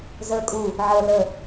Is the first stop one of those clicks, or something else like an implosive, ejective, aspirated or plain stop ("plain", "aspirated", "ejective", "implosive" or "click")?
ejective